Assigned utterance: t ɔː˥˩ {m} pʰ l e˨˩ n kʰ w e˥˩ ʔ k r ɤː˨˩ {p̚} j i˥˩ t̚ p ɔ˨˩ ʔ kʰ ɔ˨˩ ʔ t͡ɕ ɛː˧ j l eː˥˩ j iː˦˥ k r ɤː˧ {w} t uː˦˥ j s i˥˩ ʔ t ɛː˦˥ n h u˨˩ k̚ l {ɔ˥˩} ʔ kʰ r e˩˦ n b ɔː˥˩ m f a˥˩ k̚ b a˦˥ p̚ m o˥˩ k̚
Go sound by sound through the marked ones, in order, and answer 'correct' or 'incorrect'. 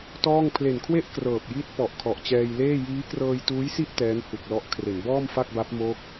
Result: incorrect, correct, incorrect, incorrect

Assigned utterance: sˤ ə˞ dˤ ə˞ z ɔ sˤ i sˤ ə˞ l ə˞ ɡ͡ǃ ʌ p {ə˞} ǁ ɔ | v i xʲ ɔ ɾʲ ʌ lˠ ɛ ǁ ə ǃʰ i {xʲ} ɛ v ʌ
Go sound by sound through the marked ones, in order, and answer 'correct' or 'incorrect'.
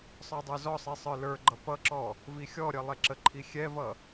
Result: incorrect, correct

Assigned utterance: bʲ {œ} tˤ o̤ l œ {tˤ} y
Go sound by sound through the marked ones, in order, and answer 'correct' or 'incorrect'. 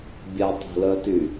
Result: incorrect, incorrect

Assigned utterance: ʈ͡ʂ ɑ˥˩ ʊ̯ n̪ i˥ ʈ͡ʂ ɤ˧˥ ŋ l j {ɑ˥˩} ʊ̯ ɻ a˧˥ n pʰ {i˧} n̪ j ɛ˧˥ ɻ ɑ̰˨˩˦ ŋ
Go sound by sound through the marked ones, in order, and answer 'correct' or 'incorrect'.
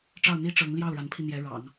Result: correct, correct

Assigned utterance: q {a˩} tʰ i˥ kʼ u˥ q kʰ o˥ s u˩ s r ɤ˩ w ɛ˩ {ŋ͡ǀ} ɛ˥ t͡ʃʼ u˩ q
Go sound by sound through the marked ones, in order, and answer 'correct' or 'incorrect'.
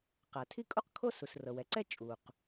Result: correct, incorrect

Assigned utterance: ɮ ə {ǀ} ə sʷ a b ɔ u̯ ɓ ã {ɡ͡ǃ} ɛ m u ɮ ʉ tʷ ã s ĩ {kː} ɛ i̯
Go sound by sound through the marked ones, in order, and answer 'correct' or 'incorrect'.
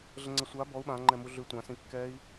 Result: incorrect, incorrect, correct

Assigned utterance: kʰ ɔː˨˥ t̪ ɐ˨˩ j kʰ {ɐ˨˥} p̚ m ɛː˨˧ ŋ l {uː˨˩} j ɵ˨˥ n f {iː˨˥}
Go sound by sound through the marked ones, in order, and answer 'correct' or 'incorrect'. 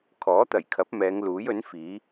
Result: correct, incorrect, correct

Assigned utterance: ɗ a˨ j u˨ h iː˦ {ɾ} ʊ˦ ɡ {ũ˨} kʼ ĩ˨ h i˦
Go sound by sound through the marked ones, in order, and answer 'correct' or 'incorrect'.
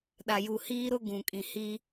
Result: correct, correct

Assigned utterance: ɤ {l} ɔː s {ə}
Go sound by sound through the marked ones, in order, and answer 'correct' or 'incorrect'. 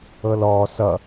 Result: correct, incorrect

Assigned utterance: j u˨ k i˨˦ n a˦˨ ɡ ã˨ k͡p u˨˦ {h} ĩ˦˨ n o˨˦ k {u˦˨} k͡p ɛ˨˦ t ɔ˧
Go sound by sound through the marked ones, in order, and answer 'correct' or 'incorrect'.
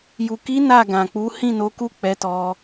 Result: correct, correct

